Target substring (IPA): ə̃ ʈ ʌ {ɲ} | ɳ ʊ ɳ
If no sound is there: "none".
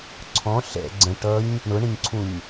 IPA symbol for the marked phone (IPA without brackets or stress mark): ɲ